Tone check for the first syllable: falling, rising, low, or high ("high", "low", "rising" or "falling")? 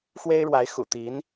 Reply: high